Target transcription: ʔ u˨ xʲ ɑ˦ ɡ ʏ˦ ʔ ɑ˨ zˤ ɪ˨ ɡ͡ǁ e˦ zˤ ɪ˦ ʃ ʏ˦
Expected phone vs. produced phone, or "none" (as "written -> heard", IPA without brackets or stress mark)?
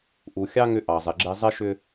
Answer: ɡ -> ŋ